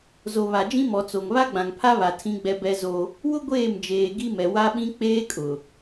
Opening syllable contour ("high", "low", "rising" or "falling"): low